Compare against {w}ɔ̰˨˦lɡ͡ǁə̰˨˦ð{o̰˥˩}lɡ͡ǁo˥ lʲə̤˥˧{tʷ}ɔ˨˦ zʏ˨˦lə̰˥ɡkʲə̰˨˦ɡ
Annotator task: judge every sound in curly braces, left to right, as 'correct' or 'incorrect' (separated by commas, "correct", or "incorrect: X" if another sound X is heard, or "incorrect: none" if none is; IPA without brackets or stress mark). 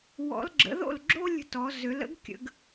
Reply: correct, correct, incorrect: t